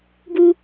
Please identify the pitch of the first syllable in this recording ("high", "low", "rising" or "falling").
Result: high